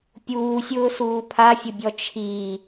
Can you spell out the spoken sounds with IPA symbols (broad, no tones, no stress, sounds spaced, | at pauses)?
pʲ uː sʲ ʊː s uː pʰ a fʲ ʊ bʲ ɔ t͡ʃʰ i